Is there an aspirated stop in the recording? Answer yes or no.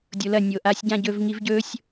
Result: no